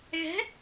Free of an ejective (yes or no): yes